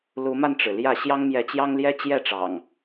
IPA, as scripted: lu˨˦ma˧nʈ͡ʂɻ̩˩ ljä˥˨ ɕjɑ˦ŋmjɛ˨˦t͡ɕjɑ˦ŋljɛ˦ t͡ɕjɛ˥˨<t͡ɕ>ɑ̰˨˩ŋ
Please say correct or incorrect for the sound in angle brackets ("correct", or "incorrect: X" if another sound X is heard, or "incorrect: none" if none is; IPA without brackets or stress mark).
incorrect: ʈ͡ʂ